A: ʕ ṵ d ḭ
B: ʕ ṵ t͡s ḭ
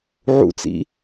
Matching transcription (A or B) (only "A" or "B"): B